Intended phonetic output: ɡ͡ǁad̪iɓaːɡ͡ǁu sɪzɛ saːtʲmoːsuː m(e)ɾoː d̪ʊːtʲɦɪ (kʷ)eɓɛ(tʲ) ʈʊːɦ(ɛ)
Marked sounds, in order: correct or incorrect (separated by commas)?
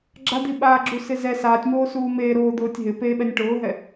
incorrect, incorrect, incorrect, correct